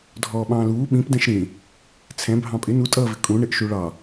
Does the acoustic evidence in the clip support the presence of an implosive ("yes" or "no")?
yes